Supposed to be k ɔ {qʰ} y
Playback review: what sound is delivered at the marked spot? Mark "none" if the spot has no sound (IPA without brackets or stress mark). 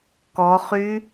χ